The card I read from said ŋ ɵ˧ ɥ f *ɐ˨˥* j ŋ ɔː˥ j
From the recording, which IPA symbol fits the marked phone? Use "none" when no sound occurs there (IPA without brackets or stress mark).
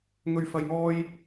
ɐ˧